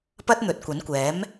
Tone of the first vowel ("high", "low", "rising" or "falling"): high